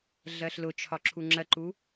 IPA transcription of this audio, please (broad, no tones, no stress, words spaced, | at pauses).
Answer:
ɮɜɬlʊt͡ʃʰɒ ǁʰuŋ͡ǁɜǃu